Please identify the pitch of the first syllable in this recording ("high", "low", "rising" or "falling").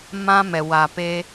high